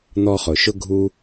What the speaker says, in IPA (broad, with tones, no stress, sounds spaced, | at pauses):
n̪ ɔ˧ χ ʊ˨ ʃ ʊ˦ ɡʱ u˦